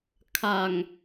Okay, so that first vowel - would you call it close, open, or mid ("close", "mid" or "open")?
open